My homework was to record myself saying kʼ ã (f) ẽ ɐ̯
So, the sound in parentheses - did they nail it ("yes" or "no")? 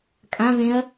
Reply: no